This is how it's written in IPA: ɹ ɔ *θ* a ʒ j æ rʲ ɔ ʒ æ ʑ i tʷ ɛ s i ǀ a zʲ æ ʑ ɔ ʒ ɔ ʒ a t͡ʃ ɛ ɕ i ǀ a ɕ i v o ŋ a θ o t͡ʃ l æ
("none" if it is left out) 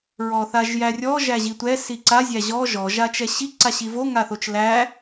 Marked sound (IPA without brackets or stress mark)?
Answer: θ